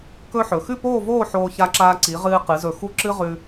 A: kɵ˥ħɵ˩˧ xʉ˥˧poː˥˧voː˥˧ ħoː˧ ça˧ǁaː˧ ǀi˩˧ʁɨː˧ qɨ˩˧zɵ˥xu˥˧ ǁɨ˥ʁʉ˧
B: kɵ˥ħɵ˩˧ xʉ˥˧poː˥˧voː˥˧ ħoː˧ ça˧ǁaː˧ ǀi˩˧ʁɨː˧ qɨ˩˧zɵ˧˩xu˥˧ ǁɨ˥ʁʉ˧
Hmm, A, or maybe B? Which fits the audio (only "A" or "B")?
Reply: B